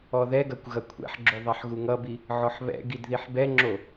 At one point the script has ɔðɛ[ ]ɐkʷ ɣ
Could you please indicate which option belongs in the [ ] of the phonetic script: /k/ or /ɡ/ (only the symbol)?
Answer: ɡ